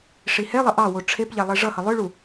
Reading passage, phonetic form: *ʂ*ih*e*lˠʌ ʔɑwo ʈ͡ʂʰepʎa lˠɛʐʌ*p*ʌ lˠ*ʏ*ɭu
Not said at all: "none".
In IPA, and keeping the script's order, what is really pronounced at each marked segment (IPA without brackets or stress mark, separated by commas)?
ʂ, ɛ, h, ʏ